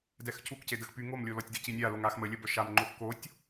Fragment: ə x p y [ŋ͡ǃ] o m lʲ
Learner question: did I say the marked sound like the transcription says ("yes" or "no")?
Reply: no